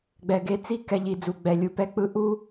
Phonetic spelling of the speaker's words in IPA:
ɡ͡b ɛ˨ ɡ e˧ t͡s i˦ k ɛ˨ ʎ i˨ d͡z u˨ ɡ͡b ɛ˨ lʲ u˨ p ɛ˧ k͡p ɯ˧ ʔ u˦

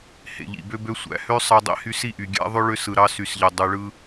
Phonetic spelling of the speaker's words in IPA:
h ḛ˨ ʎ ḭ˨ b ø˦ b ø˦ sʷ æ̰˨ h ø˦ sˤ ɑ˦ dˤ ḭ˦ h y˦ s i˦ ʔ y˨ ɡʲ æ̰˦ ðˤ ø˦ ɭ ø˦ s ɯ˨ ɾ ɑ˦ s y˨ s ʎ e˨ dˤ y˨ ɭ ɯ˦

